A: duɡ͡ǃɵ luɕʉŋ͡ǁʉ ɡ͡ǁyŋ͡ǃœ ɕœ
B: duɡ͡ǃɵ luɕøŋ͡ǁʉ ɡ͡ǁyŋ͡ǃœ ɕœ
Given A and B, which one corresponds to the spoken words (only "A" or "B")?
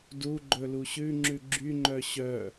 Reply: A